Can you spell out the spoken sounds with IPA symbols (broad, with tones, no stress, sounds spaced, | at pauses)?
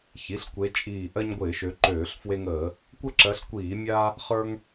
ç i˩˧˩ ɬ kʷ e˨˦ t͡ʃʼ iː˧˩ ʔ ɜ˦ ɲ ɡʷ ɪː˧˩˧ ʃ ø˨˦ ǃ øː˧˩˧ ɬ f w e˦ ŋ əː˧˩˧ | kʷ ə˥˨ ǁ ɜ˨˦ ɬ kʷ iː˧˩˧ mʲ a˦ | χ ə˞˦ ŋ